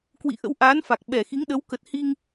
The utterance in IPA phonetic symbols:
k w ḭ˧˨ ʔ ə̰˧˥ w ʔ aː˨˦ n f a˨˩ k̚ ɓ ɛ˧˩ x i˨˦ ŋ ɗ ə˨˦ w k ə˨˩ t̚ h i˧ ŋ

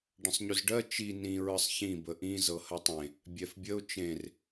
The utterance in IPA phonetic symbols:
ɖ ə̃ sˤ ɲ ʉ z ɖ ɜ t͡ʃ i n ĩ ɹ ɯ sˤ ç ĩ b ə ʔ ĩ z ɤ h ɜ tˤ ẽ | bʲ ɛ f bʲ ə ʊ̯ t͡ʃ ẽ r

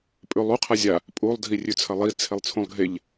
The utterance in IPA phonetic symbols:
pʼ ʉ lˠ u qʰ a zʲ a | pʼ u lˠ dʱ i rʲ ʉ t͡sʰ ɐ lˠ i t͡sʰ e lˠ t͡sʰ ũ lˠ ɡʱ e ʎ

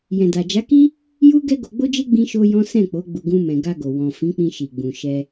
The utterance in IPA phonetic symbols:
j ɛ̃˨ d a˨ d͡ʒ a˨˦ k i˦ | j u˦ ɡ ɛ˦ ɡ o˧ ɡ͡b o˦ d͡ʒ e˦ ɡ͡b ĩ˦ ʃ o˦ j ɔ̃˦ s ɛ̃˦˨ k͡p o˨˦ ɡ͡b u˧ ɡ ũ˦ m ɛ̃˧ ɡ a˧ ɡ o˨ w ɔ̃˨ f ĩ˨˦ k͡p ĩ˧ ʃ i˨ ɡ͡b ũ˨ ʃ ɛ˧

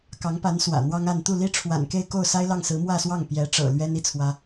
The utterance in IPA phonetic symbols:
k ɑ˧˥ ŋ p a˧˥ n s w ä̰˨˩ n̪ w ɑ˥ ŋ a˥˧ n t̪ u˥˩ l i˥ ʈ͡ʂʰ w a̰˨˩ n k e˥˧ ɪ̯ k o˥˩ ʊ̯ s a˥ ɪ̯ l ɑ˥˩ ŋ s ɹ̩˧˥ m w ä˥˧ s w ɑ˥˩ ŋ p j ɛ˧˥ ʈ͡ʂ ɤ̰˨˩ l ɥ ɛ˥ n i˥˩ t͡sʰ w ä˥

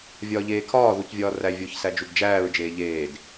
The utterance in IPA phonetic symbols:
vʲ ɒː ʎ eː kʰ ɒː ð u c vʲ ɒː r æ vʲ o ç s æ d͡ʒ u ɡ d͡ʒ æː ɹ d͡ʒ eː ʎ eː d

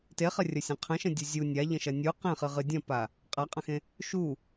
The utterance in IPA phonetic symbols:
t e χ ɐ rʲ ɐ sʲ ẽ qʰ ə̃ ʃ ə̃ dʲ u zʲ u nʲ a ʎ ə̃ ʃ ɐ nʲ u q ẽ χ ɨ ʁ ɨ dʲ ɐ̃ p a | qʼ a qʼ ɐ̃ x ẽ | ʃ u

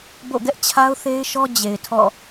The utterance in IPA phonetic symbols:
b o̰˦˨ ɡ ɛ˦ ʔ t͡ɕʰ a˦ ʊ̯ θ e˦ ɪ̯ ʃ ɔ˦ d͡ʑ e˨ ɪ̯ tʰ ɔ̰˦˨

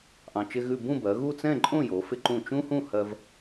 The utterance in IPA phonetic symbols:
ʔ ɑ̃˧ t͡ʃ ɪ˥ ɣ ʉ˥˧ b ũ˥˧ b ɜ˩˧ ɣ u˥˧ t͡s ɛ̃˥˧ ǃʼ õ˥˧ j o˩˧ f ɪ˧ ǃ ũ˧˩ t͡ʃ ũ˥ h ũ˥˧ h ɜ˧ v

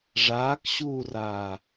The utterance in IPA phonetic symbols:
ʐ aː k ɕ uː r aː

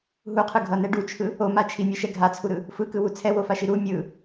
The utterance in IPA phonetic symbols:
ɦ u qʰ ɯ ɡʱ ʌ n ɛ ɖ u t͡ʃʰ ɯ | o m a t͡ʃʰ i mʲ e ʃ ɛ ɡʱ a t͡sʰ u ɾ ɯ | f ɯ k ɯ w u t͡sʰ ɛ w o f a ʃ i ɾ u mʲ ɯ

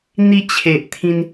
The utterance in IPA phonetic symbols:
n̪ i˧ t͡ɕʰ e˨ ʔ t̪ʰ ĩ˧ n

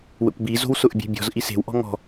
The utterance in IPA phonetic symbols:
w ə̰ kʷ b i z o̤ w s ʊ ʔ bʲ e̤ bʲ ɔ̤ z ʔ i s e̤ w ʔ ɔ̤ ŋ ɔ̤

